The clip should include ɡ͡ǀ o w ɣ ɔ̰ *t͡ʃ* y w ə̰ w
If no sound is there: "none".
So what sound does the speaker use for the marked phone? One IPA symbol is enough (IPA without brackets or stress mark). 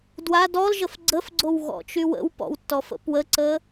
t͡ʃ